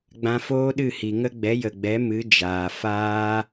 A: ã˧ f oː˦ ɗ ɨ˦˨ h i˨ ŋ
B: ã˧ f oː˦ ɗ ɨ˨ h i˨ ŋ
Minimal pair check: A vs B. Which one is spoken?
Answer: A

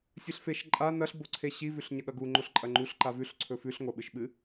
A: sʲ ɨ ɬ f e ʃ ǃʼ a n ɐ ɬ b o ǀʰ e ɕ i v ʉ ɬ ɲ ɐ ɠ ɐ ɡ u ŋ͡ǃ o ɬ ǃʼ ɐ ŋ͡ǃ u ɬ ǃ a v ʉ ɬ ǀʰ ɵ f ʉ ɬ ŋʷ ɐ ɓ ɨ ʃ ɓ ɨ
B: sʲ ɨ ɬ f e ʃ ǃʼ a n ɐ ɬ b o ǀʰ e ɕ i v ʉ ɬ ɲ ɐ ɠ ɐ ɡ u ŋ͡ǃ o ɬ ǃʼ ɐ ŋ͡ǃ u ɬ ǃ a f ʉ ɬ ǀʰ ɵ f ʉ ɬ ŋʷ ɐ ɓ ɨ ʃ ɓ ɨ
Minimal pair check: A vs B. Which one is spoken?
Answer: A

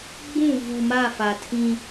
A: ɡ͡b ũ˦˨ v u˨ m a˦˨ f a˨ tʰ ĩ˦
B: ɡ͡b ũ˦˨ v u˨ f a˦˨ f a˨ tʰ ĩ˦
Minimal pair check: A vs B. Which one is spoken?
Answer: A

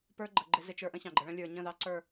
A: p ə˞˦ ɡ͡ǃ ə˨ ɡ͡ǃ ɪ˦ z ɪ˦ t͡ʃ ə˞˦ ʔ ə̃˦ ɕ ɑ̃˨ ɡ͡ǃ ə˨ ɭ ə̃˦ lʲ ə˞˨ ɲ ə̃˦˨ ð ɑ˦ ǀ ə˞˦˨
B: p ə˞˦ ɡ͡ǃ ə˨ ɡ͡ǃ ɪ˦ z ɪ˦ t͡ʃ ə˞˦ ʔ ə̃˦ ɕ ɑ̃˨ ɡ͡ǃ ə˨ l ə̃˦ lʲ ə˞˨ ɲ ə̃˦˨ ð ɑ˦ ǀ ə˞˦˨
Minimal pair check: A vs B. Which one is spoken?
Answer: A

